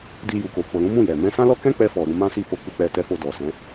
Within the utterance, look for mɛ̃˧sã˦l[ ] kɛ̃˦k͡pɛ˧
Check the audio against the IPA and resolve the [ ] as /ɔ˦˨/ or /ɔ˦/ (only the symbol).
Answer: ɔ˦